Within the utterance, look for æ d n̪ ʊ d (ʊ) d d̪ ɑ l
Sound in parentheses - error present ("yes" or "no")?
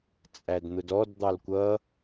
yes